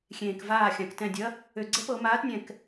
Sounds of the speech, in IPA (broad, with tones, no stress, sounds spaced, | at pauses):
xʲ ẽː˩ k v aː˧˩ xʲ ã˩ k t ɛ̃˧˩ dʲ ɐ˨˥ | ø˧˩ ɡ͡ǀ ɛ˥ p ɤ˨˩˦ m aː˨˥ t nʲ ɛ̃˧˩ k